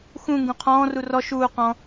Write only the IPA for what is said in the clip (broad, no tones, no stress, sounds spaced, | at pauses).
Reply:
x ũ ŋ ɡ ũ qʰ ɔ̃ː r u r ɔ ʃ uː q ɔ̃